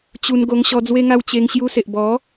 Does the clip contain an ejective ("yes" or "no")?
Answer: no